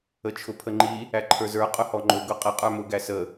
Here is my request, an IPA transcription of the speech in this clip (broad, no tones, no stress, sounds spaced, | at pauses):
ə t͡ʃʰ ʊ pʰ ə ŋ͡ǃ i | æ ǃʰ ə˞ z ə˞ qʼ ʊ h ɔ ŋ͡ǃ ʊ ɡ ʊ qʼ ɪ qʼ ə˞ m ʊ ɡ æ s ə